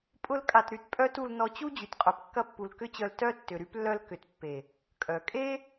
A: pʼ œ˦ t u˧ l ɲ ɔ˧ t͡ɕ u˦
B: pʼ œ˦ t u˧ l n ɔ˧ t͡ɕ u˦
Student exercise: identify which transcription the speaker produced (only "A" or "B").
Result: B